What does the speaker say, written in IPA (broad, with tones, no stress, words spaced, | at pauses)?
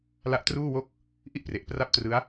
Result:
la˦˥ʔtruː˥˩wo˥˩k̚ | ʔi˥˩ʔpre˨˩ʔpra˥˩p̚trɯ˦˥a̯